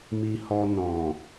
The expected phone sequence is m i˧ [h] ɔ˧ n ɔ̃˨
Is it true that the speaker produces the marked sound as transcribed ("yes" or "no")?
yes